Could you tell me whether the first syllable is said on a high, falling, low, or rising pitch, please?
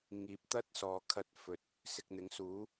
rising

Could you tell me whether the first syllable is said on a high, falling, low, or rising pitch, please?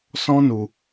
high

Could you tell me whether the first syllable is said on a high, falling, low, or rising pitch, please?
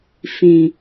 low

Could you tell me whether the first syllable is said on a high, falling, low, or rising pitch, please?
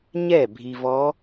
falling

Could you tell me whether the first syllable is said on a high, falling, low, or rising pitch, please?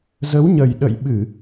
rising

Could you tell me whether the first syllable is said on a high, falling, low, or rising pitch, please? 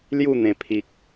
falling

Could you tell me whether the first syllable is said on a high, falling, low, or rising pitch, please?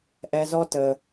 low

